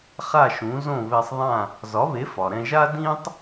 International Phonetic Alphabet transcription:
χ a˥˩ ʃ ũ˩˥ z õ˥˩ β e˧ sˤ ðˤ ã˥˩ | z ɒ˩˥ β e˩˥ f ɒ˩ ɾ ɛ̃˧ ʒ a˥ d ĩ˥ tˤ

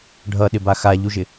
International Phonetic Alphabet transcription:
ɖʱ ʌ ɗ ɪ b a x a ʎ u ʒ ɪ

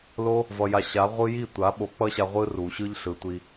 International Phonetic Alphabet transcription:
l o˦ | v ʌ˨ j a˨ ɕ a˨˦ ʁʷ ɯ˦ j i˦˨ tʷ a˨˦ ɓ o˨˦ k͡p ʌ˦ ɕ a˧ ʁʷ ɯ˦ r u˨ ɕ ɯ˦ ʎ ɬ ɯ˨ tʷ i˧

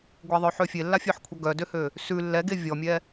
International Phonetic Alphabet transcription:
ɡʷ ɛ ðˤ œ ħ ø fʲ e lː a fʲ œ ħ kʷʰ ʌ ɡ œ d ø h ø | s ʉ lː ɛ ɡ e vʲ ɔ mʲ ɛ

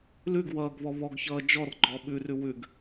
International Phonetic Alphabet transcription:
l ʉ ɡ w ʌː ɡ β ɔ β ɔ ɡ ç ʌː d͡ʒ ɔ r ɡ͡ǃ ɔ ɓ ʉ r ʉ w ʉ ɡ

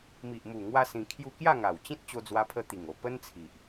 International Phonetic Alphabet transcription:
m i˨ ʔ m u˨˩ ŋ w a˧ s ĩ˧ kʰ j u˥˧ k j a˥˧ ŋ a˨˩ w t͡ɕ ĩ˦ t̚ t͡ɕ o˧ d͡z w a˧ pʰ ə˧ t̪ i˨˩ ŋ o˨˩ p ə˦ n t͡sʰ i˨ ʔ

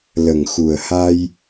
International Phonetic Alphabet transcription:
l ə˨˩ ŋ x u˨˩ ə̯ h a˧ j

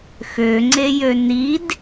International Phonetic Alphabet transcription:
x ø ŋ͡ǀ e j ø n i d

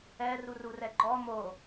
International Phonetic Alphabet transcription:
ɛ r u r u r ɛ ɡ͡ǃ ɔ m o

